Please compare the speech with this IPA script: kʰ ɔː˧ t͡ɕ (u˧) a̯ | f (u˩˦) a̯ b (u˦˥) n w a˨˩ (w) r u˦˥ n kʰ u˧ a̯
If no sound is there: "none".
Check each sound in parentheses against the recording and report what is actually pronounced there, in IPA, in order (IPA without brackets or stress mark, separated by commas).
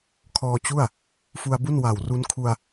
u˥˩, u˧, u˥˩, w